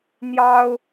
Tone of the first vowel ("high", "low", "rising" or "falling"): high